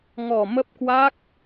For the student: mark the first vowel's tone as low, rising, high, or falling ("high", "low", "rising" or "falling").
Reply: low